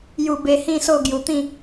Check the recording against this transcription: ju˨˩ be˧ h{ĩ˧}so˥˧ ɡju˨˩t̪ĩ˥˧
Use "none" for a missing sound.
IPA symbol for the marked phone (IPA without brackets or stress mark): ĩ˥˧